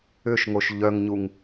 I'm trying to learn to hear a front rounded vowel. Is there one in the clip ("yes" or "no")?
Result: yes